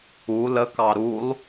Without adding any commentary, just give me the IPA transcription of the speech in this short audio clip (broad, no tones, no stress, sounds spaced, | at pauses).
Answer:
u l ə k ɑ ɾ u lˠ